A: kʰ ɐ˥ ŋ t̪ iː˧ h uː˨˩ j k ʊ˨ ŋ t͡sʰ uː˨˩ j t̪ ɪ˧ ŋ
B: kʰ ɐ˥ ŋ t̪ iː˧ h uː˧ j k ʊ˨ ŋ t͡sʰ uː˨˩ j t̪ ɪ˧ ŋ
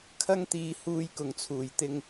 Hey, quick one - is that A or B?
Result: B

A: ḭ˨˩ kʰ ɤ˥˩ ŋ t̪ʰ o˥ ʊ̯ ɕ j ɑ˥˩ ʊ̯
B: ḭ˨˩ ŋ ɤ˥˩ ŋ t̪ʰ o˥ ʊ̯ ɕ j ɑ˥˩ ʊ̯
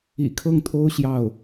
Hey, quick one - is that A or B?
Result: A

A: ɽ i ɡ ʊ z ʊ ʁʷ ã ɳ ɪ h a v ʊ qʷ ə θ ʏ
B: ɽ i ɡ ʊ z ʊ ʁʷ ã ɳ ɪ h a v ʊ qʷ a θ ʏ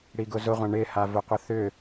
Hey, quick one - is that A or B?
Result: A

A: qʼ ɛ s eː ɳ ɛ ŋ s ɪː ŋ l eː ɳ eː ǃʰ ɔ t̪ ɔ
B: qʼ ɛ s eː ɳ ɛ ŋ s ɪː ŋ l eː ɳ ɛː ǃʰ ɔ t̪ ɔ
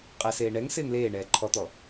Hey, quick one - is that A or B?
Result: B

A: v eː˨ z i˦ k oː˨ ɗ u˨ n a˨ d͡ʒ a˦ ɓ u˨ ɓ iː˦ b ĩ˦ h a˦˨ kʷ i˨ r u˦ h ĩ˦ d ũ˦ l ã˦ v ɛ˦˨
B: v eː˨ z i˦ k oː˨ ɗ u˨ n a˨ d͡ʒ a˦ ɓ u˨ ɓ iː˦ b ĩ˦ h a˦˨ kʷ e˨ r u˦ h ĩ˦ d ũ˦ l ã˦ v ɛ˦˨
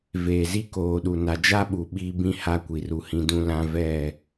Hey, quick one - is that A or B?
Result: A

